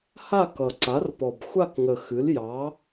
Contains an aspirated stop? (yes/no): no